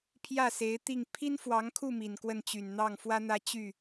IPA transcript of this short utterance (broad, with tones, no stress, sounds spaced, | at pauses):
pʰ j ä˥˩ s e˧˥ ɪ̯ t̪ i˥˩ ŋ pʰ i˥ n f w ɑ˧˥ ŋ kʰ u˥˩ m i˨˩ n k w ə˥˩ n t͡ɕ y˨˩ n n̪ ɑ˥˩ ŋ f w ä˥ n̪ ä˥˧ t͡ɕ y˥˩